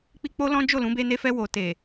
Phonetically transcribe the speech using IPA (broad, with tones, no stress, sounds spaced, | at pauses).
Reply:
k͡p i˧ k͡p o˦ l ɔ̃˦ d͡ʒ o˦˨ l ũ˨˦ b e˧ n e˧ f ɛ˧ w o˨ t e˨